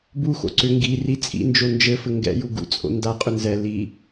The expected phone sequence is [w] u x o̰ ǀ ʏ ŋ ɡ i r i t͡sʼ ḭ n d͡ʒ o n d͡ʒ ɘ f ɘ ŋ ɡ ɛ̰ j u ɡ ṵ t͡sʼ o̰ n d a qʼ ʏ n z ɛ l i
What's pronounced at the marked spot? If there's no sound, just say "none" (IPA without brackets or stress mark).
b